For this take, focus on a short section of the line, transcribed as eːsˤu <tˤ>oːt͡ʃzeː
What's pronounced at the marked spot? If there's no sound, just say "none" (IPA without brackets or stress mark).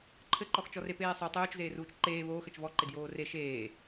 tˤ